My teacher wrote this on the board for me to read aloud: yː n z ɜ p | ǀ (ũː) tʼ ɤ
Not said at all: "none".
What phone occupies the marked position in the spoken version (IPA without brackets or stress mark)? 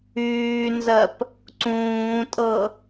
ũː